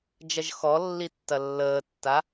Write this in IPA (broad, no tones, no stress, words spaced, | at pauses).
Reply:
d͡ʒɐʒxɔlːi tːɐlːəːtːa